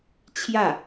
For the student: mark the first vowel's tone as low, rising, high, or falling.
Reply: falling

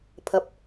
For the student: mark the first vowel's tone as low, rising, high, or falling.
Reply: low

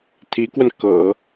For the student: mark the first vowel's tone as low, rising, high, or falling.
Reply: rising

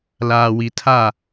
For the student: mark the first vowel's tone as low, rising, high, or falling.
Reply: low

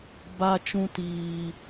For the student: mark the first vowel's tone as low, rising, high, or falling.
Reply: high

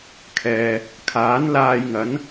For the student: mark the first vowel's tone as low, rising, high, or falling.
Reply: low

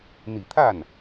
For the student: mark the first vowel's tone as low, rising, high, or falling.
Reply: low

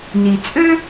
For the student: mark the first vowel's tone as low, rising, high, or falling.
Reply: low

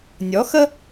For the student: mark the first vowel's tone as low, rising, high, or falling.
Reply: rising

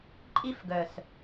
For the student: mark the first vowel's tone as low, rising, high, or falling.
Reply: high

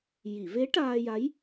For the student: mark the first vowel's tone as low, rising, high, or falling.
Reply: low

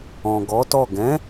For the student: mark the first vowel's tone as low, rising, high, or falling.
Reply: low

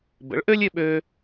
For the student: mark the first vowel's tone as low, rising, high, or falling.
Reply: rising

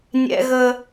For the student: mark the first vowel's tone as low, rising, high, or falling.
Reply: low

